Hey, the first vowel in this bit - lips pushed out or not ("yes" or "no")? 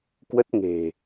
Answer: no